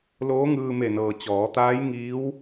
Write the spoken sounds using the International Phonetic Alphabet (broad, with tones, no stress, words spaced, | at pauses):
loː˧˥ŋɯː˧me˧˩nɤː˩ t͡ɕɔː˩˧t̪aː˧˥j ŋiː˧˥w